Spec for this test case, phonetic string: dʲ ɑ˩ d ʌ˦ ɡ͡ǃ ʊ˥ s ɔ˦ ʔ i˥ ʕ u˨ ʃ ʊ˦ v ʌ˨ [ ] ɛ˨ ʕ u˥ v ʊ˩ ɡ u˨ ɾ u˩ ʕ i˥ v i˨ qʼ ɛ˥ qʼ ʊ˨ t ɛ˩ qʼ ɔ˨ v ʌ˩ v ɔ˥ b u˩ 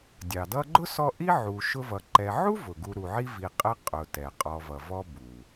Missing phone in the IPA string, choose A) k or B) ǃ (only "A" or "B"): B